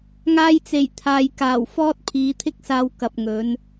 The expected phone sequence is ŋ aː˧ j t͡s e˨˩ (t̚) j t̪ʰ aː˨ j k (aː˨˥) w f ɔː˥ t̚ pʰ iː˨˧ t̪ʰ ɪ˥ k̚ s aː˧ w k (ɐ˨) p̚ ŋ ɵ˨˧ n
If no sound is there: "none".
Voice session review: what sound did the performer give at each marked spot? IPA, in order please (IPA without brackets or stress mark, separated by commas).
none, aː˨˩, ɐ˨